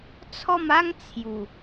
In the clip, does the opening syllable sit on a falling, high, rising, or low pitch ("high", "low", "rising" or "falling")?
falling